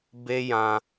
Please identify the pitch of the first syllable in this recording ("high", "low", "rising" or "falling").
high